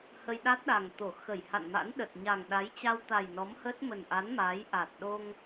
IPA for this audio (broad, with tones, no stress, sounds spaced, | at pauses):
h ə˧ j ɗ a˦˥ t̚ ɗ a˨˩ ŋ t̪ o˧˩ x ə˧˩ j h a̰˧˨ n m a̰˧˥ n ɗ ə˨˩ t̚ ɲ a˨˩ ŋ ɗ a˨˦ j t͡ɕ a˧ w t̪ a˨˩ j n ɔ˨˦ m h ə˦˥ t̚ m ə˨˩ n ʔ a˨˦ n m a˨˦ j ʔ a˨˩ t̚ ɗ o˧ ŋ